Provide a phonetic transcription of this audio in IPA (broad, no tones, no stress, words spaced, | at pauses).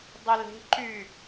dˤʊle̤ ǃy